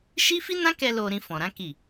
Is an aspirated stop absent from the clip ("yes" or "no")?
yes